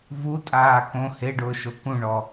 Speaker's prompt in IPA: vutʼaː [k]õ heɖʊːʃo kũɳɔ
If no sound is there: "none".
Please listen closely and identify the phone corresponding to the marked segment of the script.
k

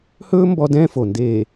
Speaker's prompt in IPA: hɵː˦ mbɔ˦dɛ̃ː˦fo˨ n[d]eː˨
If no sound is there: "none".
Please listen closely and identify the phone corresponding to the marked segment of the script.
d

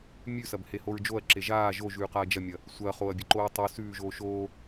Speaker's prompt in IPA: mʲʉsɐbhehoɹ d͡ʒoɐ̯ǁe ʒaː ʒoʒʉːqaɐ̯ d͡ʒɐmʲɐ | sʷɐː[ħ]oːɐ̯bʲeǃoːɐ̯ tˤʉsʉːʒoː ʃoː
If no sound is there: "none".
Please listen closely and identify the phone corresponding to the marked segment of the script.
χ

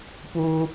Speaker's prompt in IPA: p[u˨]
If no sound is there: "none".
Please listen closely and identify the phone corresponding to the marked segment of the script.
u˦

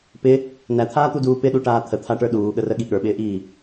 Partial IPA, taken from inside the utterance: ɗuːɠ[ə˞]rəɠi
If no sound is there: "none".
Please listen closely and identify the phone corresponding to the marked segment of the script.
ə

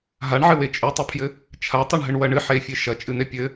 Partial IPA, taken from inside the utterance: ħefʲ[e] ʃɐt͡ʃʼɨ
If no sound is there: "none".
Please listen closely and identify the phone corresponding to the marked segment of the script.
e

